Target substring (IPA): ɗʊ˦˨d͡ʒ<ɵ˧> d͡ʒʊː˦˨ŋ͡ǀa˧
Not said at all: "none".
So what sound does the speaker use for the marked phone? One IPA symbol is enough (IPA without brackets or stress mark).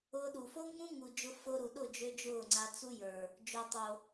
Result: ø˧